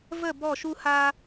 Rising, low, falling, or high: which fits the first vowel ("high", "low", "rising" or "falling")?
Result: falling